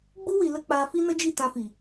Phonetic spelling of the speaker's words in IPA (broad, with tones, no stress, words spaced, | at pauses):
ɡ͡bu˦ wi˧ lə˦k͡pa˧ fi˦nə˦d͡ʒi˦˨ tã˧fi˨